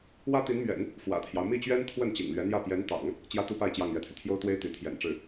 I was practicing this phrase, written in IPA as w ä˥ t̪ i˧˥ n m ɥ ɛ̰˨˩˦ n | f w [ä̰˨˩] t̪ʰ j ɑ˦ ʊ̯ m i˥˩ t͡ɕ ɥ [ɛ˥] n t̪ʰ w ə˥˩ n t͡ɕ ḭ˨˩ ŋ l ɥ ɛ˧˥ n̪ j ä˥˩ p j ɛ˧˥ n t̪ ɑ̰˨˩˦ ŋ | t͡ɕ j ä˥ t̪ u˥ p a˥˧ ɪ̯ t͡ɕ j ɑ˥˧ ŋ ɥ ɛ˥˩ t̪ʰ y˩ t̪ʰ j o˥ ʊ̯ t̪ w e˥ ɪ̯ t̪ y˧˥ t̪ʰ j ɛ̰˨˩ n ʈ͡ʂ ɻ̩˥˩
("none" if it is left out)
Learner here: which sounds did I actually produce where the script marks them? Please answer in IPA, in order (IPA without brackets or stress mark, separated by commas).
ä̰˨˩, ɛ˥